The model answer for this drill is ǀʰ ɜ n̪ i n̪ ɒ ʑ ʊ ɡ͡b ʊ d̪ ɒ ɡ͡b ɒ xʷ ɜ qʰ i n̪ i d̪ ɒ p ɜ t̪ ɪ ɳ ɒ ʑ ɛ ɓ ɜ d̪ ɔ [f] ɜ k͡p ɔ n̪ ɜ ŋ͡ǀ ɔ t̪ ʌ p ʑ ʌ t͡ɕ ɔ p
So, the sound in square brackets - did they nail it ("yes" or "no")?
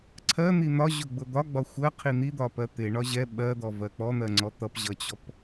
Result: no